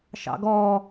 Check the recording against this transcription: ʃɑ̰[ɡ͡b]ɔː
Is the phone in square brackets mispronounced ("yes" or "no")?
yes